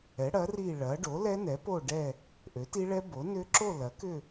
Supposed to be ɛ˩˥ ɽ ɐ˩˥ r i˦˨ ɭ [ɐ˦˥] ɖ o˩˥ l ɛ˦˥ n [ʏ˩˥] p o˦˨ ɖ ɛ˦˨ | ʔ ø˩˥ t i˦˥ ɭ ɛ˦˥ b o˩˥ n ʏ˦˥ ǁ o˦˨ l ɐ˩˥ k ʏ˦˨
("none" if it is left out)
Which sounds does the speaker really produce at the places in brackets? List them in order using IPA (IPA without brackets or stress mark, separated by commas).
ɐ˩˥, ɛ˩˥